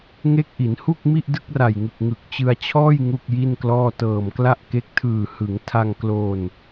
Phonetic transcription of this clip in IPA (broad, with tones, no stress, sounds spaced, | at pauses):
ŋ e˦˥ k̚ ʔ i˩˦ n h u˥˩ k̚ m i˥˩ ʔ d ɯ˥˩ k̚ r a˨˩ j ŋ ɯ˨˩ k̚ ŋ ɯ˨˩ k̚ t͡ɕ ɯ˧ a̯ t͡ɕʰ ɔː˥˩ j ŋ u˥˩ k̚ j i˥˩ n k l ɔː˥˩ t ɤː˨˩ m k l a˥˩ ʔ k e˦˥ k̚ tʰ ɯː˨˩ h ɯ˩˦ ŋ tʰ a˧ ŋ k l o˧ n